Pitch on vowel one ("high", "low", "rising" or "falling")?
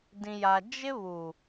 low